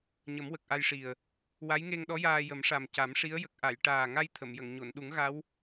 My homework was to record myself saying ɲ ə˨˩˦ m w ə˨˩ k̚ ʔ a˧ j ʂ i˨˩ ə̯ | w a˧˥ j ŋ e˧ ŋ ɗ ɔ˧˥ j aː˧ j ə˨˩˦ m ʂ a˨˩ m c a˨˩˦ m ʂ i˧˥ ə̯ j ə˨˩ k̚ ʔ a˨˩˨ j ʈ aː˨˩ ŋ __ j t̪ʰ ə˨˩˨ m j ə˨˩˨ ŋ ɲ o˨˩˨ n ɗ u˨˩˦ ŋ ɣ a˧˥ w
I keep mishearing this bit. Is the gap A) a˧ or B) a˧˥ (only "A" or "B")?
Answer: A